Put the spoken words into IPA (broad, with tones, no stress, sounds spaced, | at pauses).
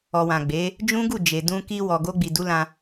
ɔ˨ w ã˨ ɡ͡b e˨˦ | d͡ʒ ũ˦ ɡ u˦˨ d͡ʒ e˨ d ũ˧ k i˧ w ɔ˨ ɡ o˧ ɡ͡b i˨ d u˨˦ l ã˧